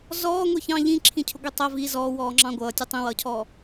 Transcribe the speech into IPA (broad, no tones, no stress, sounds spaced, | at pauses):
z ɔː ŋʷ i ç ɑ̃ ʎ ĩ ǁʰ ĩ cʰ ʊ ɡʷ i tˤ ɜ v i z ɔː w ɔː ŋ͡ǁ ɑ̃ ɡʷ ʌː tʲ ɜ tˤ ĩ w ʌː cʰ ɔː